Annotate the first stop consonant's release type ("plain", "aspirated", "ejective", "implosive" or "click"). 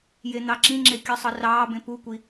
click